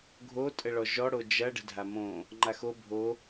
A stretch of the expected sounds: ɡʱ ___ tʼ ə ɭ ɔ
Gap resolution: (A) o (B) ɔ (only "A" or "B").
A